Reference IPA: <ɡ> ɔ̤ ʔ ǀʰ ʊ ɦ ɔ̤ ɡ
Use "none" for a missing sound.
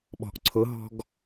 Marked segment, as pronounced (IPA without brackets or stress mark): ɓ